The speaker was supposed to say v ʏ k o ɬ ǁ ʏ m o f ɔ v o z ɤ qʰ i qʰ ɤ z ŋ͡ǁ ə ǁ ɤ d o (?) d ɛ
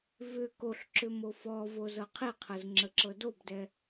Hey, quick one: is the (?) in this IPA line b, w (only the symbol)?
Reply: b